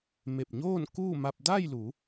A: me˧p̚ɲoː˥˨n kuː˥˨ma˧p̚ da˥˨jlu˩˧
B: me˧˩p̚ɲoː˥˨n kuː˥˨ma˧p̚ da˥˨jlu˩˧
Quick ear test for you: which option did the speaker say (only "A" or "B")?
B